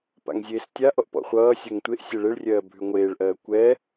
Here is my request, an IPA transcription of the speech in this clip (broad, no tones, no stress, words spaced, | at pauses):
pa̰ŋzʲeːstʲaʔɔʔ pɔ̰χʷʌː sʲɜŋtʷeʔ sʲɛɭeɭrʲɜː bʱʉŋʷeːɭʔɜː kʷɛ